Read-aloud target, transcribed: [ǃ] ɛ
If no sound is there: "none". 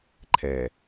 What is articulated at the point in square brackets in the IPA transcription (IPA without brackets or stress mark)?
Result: ǃʰ